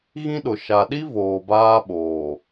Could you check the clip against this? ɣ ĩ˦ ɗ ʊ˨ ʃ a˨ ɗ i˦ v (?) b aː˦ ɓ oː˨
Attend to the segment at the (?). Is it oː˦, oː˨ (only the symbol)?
oː˨